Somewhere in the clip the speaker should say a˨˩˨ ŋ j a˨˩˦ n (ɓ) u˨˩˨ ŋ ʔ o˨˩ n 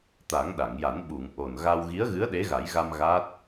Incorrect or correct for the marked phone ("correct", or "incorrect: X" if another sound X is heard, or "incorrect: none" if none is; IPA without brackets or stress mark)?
correct